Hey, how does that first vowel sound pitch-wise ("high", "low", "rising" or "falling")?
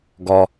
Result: low